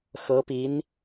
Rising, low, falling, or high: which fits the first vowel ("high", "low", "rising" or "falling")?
rising